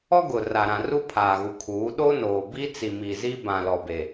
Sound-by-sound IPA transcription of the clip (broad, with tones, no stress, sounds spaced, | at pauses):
ɔ˦ ɡ ʊ˨ r a˨ ɾ ã˨ r u˦ pʰ aː˨ ɣ u˨ kʰ uː˨˦ ɗ o˦ n oː˨ b i˦ t͡s i˨ m i˨ z i˦ b ã˨ l ɔ˨ b e˨